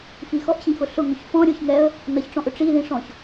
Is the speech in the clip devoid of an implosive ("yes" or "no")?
yes